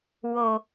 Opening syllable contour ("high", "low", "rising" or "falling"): low